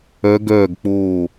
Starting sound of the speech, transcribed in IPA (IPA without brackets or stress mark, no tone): œ